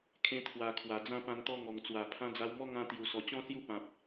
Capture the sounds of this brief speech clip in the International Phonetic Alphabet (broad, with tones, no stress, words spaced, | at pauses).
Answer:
kʰẽ˧ t̪ʰwa˨˩ kʰwa˨˩d͡zã˥˧ pã˧nt̪ɔ˦ŋɔ˨˩ŋt͡swa˨˩ pʰã˧d͡za˧wmɔ˦ŋã˧ t̪ju˨˩sɔ˨˩t͡ɕɔ̃˥˧ sju˥˧pã˨p̚